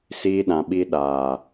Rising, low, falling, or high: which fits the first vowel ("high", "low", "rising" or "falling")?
high